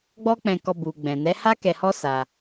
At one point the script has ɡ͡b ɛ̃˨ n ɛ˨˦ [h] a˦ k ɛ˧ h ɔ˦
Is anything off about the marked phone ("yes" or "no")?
no